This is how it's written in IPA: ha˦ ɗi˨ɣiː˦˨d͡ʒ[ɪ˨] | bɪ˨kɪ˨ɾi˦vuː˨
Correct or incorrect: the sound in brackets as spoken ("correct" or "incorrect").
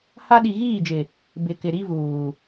correct